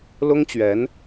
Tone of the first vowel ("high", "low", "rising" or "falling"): high